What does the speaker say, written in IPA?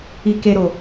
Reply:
i˨ke˨ ɾo˨

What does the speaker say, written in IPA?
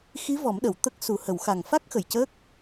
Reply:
xi˧˥vɔ˨˩˦mɗə˨˩˨w t̪ə˦˥k̚ su˨˩˨hə˨˩˨wxa˨˩ŋfa˦˥k̚ xə˨˩jcəː˦˥k̚

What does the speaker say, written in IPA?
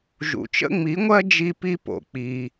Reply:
ʒṵ˨t͡ʃə̰˦ŋ͡mi˨˦ŋʷɜ˦ d͡ʒi˦pi˦ po̰˨ k͡pi˧

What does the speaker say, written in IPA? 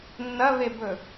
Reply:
nːɐβebɵ

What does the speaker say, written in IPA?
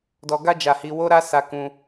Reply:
dɔ˧ɡa˦d͡ʒa˧hi˧ wo˦ɾa˦ sa˧ kũ˧

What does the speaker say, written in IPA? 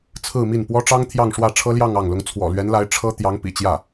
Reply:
t͡sʰɹ̩˥˧mi˥˩n pwɔ˥ʈ͡ʂɑ˥ŋ t̪ʰjɑ˥˧ŋʂwä˥˩ʈ͡ʂʰɤ˥ljɑ˥˧ŋ ɑ˥˩ŋlʊ˥ŋ t͡sʰwɔ̰˨˩lɥɛ˧˥nla˧˥ɪ̯ ʈ͡ʂʰɤ˥ t̪jɑ˧˥ŋpḭ˨˩t͡ɕjä˥˩

